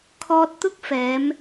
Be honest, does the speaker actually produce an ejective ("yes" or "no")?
no